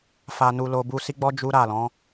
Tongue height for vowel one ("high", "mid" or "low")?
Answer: low